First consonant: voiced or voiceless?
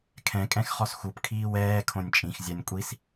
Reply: voiceless